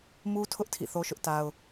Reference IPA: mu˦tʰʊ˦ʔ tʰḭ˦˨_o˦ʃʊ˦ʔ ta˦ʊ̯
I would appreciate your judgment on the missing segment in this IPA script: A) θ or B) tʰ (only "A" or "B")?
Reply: A